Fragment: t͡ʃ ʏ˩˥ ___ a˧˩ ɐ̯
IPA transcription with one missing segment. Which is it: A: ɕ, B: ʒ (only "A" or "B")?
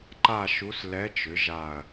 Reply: B